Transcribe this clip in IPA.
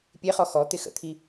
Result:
pʲeχɔ xɔt̪ɪ xə̰t̪ʰi

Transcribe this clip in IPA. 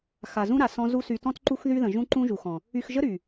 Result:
xa˨zũ˦ɾa˨ sɔ̃˦ zu˧sy˨tɔ̃˦t ǃu˦xðy˦ðə̃˨ʒũ˦ ǃũ˦ʒu˨xɔ̃˨ | y˧xʒə˦ ɾy˨

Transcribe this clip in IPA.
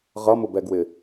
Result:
ʁʌmʊbɛɡwɪ

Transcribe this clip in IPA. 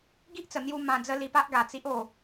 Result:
ɡi˦ʔt͡sə˨˩n̪ju˧ mã˧d͡zə˦ li˧pa˦ʔɡa˨˩ t͡si˦ʔo˥˧

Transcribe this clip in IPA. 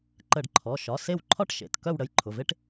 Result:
ǃə˧˩˧ɖǃʰɔ˩˧˩ ʃɒ˩˧˩se˦˨wǃʰɒ˥ʈ ʃḛ˩˧˩t kœ˦˨w ɽə˩˧˩jǃʰʊ˩˧˩ve˥ʈ

